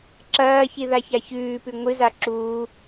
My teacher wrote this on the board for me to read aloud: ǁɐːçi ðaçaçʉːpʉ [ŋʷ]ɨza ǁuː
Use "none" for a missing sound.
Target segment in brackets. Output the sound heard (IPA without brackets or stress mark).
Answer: ŋʷ